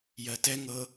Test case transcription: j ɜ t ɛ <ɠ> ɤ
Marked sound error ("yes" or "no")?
yes